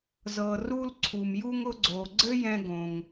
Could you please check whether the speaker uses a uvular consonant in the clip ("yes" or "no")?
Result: no